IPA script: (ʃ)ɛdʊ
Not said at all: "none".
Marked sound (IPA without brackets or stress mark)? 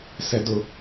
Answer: s